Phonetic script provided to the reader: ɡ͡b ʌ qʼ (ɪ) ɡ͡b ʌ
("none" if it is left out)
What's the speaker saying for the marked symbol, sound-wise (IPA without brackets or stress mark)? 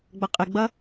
ɪ